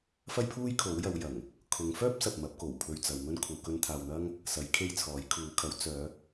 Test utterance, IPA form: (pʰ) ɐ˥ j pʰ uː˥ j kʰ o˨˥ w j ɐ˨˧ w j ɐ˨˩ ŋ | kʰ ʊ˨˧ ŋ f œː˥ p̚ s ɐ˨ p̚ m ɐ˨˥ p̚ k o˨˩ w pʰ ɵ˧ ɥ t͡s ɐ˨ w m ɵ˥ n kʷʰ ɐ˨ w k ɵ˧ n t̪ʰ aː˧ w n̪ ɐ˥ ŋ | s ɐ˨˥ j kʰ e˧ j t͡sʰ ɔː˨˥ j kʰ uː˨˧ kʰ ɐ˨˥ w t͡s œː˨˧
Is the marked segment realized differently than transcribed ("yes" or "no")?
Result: yes